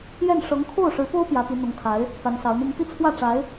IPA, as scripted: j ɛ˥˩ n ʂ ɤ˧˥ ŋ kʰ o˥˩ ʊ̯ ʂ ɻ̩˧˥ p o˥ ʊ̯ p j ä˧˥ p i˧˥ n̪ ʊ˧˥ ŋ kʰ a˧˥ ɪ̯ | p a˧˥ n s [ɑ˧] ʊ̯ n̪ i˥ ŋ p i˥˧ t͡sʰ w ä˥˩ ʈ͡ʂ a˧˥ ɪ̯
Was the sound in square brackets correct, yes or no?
no